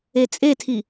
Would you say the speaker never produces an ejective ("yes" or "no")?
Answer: no